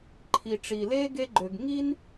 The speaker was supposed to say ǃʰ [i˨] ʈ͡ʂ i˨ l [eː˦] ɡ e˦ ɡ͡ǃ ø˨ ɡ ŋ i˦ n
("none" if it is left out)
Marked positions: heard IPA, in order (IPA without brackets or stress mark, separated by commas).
i˨, eː˦